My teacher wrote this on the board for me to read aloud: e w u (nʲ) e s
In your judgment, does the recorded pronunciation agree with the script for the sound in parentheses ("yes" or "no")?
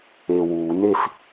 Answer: no